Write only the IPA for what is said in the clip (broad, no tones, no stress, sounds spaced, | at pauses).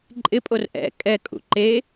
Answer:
ǃʼ ɪ pʼ o r ʔ ɛ̰ kʼ ɛ kʼ ṵ ǃ e